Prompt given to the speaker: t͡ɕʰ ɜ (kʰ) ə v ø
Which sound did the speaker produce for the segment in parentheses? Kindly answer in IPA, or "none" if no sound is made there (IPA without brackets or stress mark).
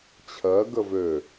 ɡ